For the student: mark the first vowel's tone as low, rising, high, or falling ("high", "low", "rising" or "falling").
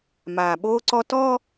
low